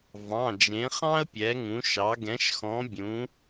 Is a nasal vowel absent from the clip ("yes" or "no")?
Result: no